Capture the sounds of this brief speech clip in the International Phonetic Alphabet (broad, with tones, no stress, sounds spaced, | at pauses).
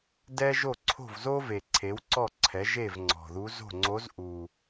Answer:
d ɛ˥ ʒ o˥˩ ǀʰ o̤˥˩ v z o˥ v e˨˩ ǀʰ e˩˥ w ǀ ɔ˥˩ ǀʰ ɛ˩˥ ʒ e˥˩ v ŋ͡ǀ ɔ̤˨˩ ð u˧˥ z o̤˥˩ ŋ͡ǀ o˧˥ z ʔ u˨˩